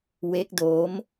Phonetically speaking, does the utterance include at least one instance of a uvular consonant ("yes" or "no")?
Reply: no